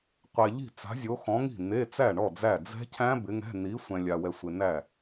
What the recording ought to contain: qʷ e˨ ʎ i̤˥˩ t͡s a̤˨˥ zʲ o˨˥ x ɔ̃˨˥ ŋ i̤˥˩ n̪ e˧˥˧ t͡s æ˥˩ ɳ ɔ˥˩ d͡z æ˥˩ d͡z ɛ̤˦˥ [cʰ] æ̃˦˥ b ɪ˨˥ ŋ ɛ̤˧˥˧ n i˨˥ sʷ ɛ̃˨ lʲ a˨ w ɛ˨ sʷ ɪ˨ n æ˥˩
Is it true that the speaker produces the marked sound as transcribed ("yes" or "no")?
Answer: yes